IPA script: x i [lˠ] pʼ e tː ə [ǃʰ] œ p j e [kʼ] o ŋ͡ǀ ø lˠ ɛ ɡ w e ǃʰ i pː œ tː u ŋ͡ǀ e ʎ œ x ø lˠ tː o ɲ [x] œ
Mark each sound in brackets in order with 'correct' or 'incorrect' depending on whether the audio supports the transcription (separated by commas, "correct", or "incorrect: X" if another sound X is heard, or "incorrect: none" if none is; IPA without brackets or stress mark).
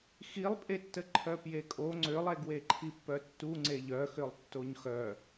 correct, correct, correct, correct